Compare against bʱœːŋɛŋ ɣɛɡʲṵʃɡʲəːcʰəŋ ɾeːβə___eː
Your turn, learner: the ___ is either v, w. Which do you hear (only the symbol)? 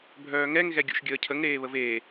v